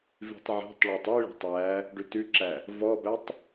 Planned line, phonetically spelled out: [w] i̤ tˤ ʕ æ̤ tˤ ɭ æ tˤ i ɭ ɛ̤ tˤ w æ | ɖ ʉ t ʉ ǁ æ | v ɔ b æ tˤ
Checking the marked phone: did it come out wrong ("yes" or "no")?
yes